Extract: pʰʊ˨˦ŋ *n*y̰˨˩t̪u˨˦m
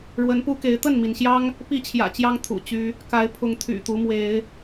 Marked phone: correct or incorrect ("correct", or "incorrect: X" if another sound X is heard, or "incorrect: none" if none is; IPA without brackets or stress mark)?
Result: incorrect: t̪ʰ